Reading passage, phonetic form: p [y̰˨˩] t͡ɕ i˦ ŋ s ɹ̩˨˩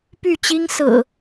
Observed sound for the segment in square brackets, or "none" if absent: y˥˨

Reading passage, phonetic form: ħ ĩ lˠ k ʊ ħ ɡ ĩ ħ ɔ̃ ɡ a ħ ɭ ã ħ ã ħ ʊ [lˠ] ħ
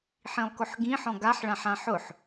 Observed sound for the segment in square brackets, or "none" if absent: none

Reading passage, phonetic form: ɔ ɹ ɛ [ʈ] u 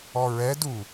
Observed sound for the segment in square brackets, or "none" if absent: d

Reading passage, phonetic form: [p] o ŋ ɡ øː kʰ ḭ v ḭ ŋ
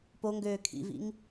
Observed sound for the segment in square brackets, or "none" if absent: p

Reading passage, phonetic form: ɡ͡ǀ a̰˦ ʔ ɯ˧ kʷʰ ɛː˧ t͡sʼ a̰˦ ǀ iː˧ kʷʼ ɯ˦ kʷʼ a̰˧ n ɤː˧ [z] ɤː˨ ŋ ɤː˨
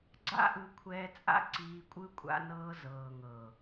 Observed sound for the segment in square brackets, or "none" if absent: z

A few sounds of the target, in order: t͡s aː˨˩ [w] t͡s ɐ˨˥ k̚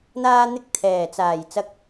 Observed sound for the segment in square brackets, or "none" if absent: j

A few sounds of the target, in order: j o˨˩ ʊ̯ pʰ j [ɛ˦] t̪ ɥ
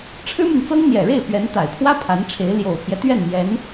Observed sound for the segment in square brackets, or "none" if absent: ɛ˦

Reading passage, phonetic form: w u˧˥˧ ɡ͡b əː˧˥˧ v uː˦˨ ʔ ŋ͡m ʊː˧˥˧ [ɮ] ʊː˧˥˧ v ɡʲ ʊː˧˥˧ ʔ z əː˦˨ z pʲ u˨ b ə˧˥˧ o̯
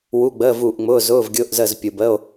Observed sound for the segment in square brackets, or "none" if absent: z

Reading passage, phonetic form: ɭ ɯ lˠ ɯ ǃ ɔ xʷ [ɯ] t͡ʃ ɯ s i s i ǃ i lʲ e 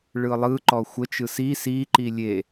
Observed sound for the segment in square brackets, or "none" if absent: ə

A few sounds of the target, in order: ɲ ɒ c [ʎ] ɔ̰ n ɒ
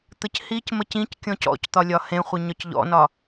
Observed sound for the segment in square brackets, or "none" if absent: ʎ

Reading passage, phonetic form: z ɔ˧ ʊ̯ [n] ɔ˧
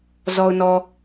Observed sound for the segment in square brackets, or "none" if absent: n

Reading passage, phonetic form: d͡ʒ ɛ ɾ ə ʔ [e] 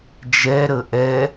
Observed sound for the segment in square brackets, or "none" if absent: ɛ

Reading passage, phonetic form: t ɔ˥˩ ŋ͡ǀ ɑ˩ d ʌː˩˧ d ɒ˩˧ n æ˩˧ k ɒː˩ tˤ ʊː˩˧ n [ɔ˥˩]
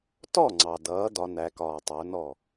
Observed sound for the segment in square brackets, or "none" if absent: ɔ˥˩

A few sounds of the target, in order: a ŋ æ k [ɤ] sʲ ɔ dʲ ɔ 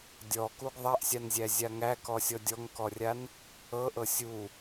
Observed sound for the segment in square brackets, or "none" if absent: ɔ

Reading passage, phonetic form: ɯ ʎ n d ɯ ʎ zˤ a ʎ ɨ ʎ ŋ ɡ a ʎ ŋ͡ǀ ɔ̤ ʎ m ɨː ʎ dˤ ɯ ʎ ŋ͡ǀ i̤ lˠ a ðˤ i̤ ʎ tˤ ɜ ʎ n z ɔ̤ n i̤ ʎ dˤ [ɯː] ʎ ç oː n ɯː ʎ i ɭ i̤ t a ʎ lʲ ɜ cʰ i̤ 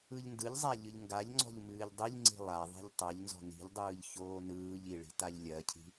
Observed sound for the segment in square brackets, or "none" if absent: ɯː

